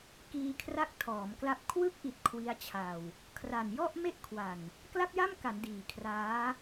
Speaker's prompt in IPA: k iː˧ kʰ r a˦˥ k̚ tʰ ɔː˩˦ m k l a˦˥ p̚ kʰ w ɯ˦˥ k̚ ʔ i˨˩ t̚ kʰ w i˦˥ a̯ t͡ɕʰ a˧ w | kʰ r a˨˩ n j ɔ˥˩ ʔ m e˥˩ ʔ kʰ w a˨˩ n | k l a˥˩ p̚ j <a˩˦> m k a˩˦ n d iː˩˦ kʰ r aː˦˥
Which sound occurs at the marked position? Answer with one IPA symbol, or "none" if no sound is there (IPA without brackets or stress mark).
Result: a˥˩